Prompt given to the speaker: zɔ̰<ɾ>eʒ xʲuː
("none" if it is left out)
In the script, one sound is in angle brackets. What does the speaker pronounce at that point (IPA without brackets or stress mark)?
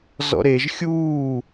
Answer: ɾ